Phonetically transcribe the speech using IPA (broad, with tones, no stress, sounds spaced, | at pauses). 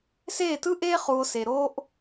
s eː˥˧ t ɯ˥ ʔ eː˥ χ uː˧ o̯ s e˧ ɾ oː˥ ʔ